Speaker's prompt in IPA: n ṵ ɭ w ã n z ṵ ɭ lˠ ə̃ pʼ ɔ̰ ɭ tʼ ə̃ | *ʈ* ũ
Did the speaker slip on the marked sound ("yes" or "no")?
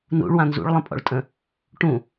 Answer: no